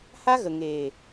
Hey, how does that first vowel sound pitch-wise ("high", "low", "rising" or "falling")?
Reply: high